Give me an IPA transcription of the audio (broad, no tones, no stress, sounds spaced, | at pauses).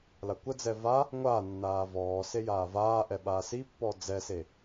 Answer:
l a kʷ ə d͡z ɛ v a | ŋʷ aː nː aː v ɔː s e j aː v aː ʔ ɛ ɓ aː s i pː ɔ d͡z ɛ s e